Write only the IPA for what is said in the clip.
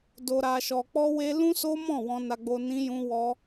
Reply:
d o˧ ɾ a˧ ʃ ɔ˧ k͡p ɔ˧ w e˧ l ũ˦ s o˦ m ɔ̃˦˨ w ɔ̃˧ n a˧ ɡ͡b o˧ n ĩ˦ j ũ˦ w ɔ˦

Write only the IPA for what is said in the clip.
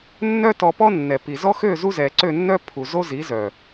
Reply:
nː œ˦ t ɔ˧ p ɔ˦ nː ɛ˨ p i˨ z ɔ˦ x ø˦˨ z u˦ z ɛ˨ ǀ ø˦˨ nː œ˦ pʰ u˨ z o˦ z i˨˦ z œ˨

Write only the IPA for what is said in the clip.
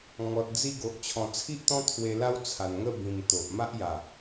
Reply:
ŋ ɔ˨ t̚ d͡z i˥˧ ɡ o˨ ʔ t͡ɕʰ ɔ̃˨˩ t͡sʰ i˦ ʔ t̪ ɔ̃˦ t̪ʰ w e˧ l a˦ w t͡sʰ a˨˩ n ŋ ə˥˧ b ĩ˨˩ m t̪ o˨ ʔ m a˦ ʔ j a˨˩

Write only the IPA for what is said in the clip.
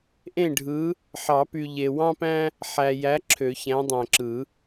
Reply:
ʔ ẽ˥˩ ɖʱ ɯ˨˥ | ħ ɑ˨˩˦ p y˨ ʎ e˨ w ɑ̃˦ p æ̃˦ | ħ æ˨ j æ˨˥ ǁʰ ø˨˩˦ ç æ̃˨˥ dˤ æ̃˨ ǁ ɯ˨˩˦

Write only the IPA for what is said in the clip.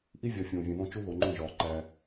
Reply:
ʔ i˦ vʲ ɒ˨ fʲ õː˨ vʲ ẽ˨ ð õ˦ t͡ʃ u˦ ð o˨ ŋ͡ǃ õ˦˨ ʒ ɒː˨ ǃ æ˦

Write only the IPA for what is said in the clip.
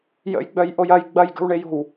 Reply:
j ə̰ j ɡ͡b œ j ʔ o j ɐ j ɡ͡b ɐ j ɡ ə̤ w ɳ e j o̤ w

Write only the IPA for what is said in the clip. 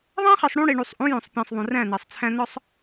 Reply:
ðˤ æ̃˦ χ i˨ sˤ ɽ ũ˦ ɽ i˨ ɳ u˨ sˤ ʔ ũ˨˦ j õ˨ sˤ pʲ æ̃˨ sˤ ðˤ ũ˨ r æ̃˦˨ n æ˨ sˤ t͡sʰ æ̃˦ n ɒ˦ sˤ

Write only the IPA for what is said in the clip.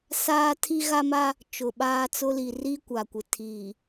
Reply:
s aː˦ tʰ i˦ ɣ a˦ m a˦ | t͡ʃ ʊ˨ ɓ aː˦ t͡s ʊ˦ l i˨ r i˦ kʷ a˨ kʷ ɪ˨ tʰ iː˨

